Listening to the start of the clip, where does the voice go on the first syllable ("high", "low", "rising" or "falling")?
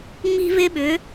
high